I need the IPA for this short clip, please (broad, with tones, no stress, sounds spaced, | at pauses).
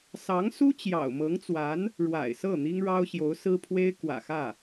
s ɑ˧˥ ŋ s u˥ t͡ɕ j ɑ̰˨˩ ʊ̯ m ɤ˧˥ ŋ t͡s w a˧˥ n | ɻ w a̰˨˩ ɪ̯ s ɤ˥˩ n̪ i˥ ŋ ɻ ɑ˥ ʊ̯ ɕ j o˧˥ ʊ̯ s ɹ̩˥ pʰ w e˥ ɪ̯ k w ä̰˨˩ x ä˥˩